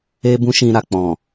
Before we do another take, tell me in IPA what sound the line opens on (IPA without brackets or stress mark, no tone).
e